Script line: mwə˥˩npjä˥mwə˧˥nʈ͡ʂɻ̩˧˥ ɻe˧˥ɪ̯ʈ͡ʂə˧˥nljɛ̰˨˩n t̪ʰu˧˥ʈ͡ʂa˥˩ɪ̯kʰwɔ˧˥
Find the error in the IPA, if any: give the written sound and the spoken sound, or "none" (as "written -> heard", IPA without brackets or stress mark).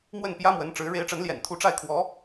none